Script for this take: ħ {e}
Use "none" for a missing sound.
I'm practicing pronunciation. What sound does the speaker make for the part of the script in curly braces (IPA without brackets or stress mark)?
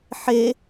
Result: e